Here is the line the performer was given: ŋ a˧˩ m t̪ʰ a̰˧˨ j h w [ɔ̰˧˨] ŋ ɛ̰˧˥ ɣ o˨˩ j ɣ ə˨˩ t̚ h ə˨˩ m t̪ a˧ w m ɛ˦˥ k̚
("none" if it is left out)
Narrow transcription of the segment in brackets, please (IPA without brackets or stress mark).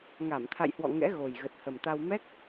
ɔ̰˧˨